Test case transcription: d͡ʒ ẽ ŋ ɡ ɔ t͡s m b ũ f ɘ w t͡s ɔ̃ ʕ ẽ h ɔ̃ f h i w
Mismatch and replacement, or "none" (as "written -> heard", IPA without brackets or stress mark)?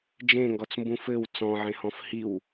none